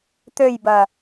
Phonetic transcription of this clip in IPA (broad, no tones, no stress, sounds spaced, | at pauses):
t̪ ø j b ɐ